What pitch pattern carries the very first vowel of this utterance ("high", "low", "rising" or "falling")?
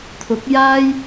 rising